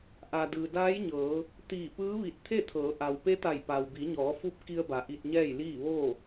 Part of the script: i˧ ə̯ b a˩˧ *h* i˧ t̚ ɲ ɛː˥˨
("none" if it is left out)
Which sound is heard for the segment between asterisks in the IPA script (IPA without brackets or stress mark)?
ʔ